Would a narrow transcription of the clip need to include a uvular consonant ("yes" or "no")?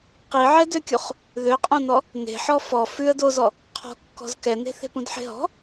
yes